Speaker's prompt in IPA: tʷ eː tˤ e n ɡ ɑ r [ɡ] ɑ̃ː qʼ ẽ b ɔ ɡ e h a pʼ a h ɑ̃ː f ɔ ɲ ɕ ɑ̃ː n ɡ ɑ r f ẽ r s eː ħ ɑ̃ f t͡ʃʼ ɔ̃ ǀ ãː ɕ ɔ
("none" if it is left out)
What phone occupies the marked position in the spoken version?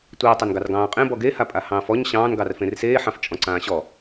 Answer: ɡ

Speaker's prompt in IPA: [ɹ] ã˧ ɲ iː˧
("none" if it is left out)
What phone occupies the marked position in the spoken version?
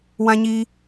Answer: w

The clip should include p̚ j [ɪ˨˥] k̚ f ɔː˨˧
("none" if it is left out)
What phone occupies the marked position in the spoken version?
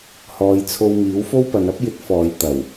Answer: ɪ˨˥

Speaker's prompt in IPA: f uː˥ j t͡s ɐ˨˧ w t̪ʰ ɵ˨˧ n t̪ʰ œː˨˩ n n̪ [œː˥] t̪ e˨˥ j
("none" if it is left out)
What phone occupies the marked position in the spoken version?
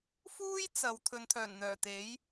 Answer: œː˨˩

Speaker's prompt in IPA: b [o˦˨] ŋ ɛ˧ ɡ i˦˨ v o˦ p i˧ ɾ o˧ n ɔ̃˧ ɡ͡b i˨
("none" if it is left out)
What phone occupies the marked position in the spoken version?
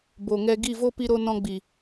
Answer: o˨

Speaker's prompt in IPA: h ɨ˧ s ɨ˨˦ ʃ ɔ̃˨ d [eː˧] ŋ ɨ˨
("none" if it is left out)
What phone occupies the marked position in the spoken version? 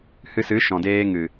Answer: eː˧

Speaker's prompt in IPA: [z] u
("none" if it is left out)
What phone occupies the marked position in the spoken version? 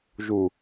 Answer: ʒ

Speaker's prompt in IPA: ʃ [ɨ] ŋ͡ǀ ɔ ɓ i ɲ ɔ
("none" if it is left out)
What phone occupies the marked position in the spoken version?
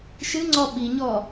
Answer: ɨ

